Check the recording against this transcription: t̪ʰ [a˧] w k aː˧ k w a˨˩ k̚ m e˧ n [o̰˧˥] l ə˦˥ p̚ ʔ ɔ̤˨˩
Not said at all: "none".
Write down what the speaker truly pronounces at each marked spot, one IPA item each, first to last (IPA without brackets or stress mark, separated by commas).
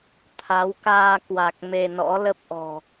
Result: a˨˦, ɔ̰˧˥